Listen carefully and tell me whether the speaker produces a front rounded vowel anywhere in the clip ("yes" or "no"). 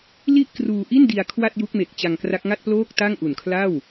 no